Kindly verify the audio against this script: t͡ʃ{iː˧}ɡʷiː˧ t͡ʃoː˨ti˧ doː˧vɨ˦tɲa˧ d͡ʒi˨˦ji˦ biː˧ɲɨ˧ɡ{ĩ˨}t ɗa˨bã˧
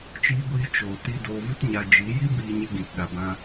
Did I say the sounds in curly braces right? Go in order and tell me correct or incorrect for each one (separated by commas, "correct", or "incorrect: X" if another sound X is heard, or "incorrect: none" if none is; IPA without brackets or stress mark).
correct, correct